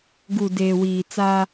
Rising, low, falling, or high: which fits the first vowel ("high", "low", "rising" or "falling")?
low